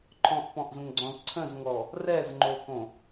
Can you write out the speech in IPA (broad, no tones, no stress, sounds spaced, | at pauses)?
ǃʰ ɔ̃ ʔ p ɔ̃ ʔ z ə̃ ŋ ɡ͡ǀ ɔ̃ z ǀʰ ə̃ z ŋ ɔ | r ɛ z ŋ͡ǃ o k õ